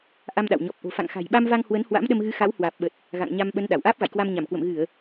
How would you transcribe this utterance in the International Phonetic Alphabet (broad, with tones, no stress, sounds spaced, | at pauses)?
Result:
ʔ a˧ m ɗ a̰˧˨ w ɲ ɔ˨˩ p̚ ʔ o̤˨˩ f a̰˧˨ ŋ x a̤˨˩ j ɓ a˧ m v a˧ ŋ h w ə˨˦ n h w a̰˧˥ m ɗ ə˧ m ɣ ɨ˨˦ x a˨˦ w h w aː˨˩ p̚ ɓ ə˨˩ t̚ | ɣ a̰˧˨ ŋ ɲ a˧ m ɓ ə˨˦ n ɗ a˧˩ w ʔ aː˦˥ p̚ ɣ a̰˧˨ j k w a˧ m ɲ a˧˩ m k w ə̰˧˨ m ɣ ɨ˧˩˨ ə̯